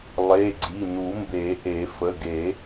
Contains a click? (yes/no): yes